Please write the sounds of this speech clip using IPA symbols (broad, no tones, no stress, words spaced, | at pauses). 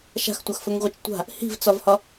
ʃa̤xtʷaxfɵŋʁʷet͡ʃ tʷa̤ | hi̤vt͡sɒvhɒ